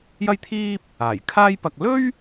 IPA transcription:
jɐ˥jt̪ʰiː˥p̚ | aː˨˩jkʰaː˥jpɐ˧k̚ lɵ˥ɥ

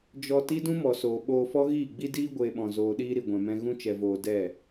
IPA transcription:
d͡ʒɔ˧ ti˦dũ˦mɔ˨soː˨ ɓoː˧fɔ˦ɣiː˦˨ ɡ͡bi˧diː˧ ɡʷeː˧ɓɔ̃˨ zoː˨ɗiː˧ ɾi˨ɡʷɛ̃˨mɛ̃˧ ɣũ˧t͡ʃɛ˨voː˨ dɛ˦˨

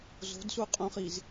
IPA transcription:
zo̤dsuqʼũχiz

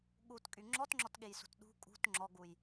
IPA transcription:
ɠutkʼy ŋ͡ǁɔtŋ͡ǁɔtɠejsṳt ɗṳ kʼṳt ŋ͡ǁɔɡuj

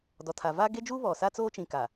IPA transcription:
dɔ˨tʰa˨ vaː˦ɡe˦d͡ʒuː˦ βɔ˨sa˦ t͡soː˦t͡ʃĩ˨ ka˨

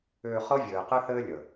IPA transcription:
ʏː˧ χɤ˦vʲɘː˨qɘ˦θɘː˦ lʲə˨

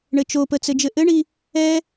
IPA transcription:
ɳɘt͡ʃopə t͡sɘd͡ʒɘʔɘɳi | ɛ

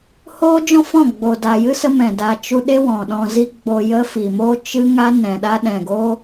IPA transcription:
hoː˦d͡ʒɔ̃˦fɔ̃˦˨ ɡ͡bo˨da˨jɨ˦ sə˦mɛ̃˨ da˨ t͡ʃu˧ɗe˦ wɔ̃˨ɗɔ̃˧zi˦ ɡ͡bo˧ jə˦ fi˨mo˦ t͡ʃɨ˦ŋa˦ nɛ̃˨ɗa˦ ɗɛ̃˨ɡoː˦

